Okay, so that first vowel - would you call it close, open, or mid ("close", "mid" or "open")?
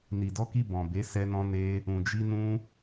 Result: close